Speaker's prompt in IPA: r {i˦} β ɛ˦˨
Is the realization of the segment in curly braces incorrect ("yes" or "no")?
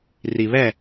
yes